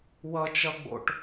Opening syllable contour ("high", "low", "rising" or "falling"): high